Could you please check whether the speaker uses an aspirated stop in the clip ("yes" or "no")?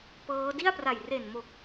no